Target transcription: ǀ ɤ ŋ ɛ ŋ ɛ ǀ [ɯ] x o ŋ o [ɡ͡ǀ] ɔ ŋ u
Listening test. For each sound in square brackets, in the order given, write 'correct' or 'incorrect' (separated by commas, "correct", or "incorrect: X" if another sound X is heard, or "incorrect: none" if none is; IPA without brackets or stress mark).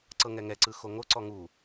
correct, incorrect: ǀ